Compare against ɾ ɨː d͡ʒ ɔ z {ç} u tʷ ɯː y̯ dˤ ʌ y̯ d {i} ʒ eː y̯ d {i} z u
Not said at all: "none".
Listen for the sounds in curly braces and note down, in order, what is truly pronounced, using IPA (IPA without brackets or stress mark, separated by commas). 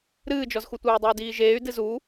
x, iː, ɨ